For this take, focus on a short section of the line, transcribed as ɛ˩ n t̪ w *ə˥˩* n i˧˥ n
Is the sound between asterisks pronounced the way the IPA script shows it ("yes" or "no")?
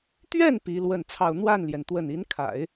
yes